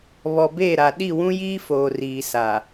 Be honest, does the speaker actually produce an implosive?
yes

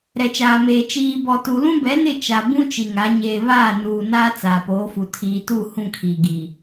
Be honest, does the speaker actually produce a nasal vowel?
yes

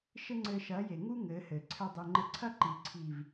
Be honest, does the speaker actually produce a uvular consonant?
no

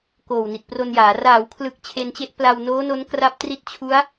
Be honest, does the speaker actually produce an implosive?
no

